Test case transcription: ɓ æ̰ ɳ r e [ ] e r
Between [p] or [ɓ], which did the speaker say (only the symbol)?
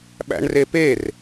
p